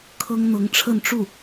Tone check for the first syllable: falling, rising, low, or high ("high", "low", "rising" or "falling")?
high